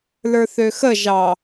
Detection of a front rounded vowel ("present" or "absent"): present